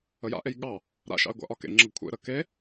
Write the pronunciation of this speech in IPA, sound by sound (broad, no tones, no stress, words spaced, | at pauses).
əja̰ʔej ɠɑ | ɾa̰ʃɑ̰e̯ ɡʷa̰ʔɒkḛŋ͡ǁɤɡ kʷʰḛɾə ke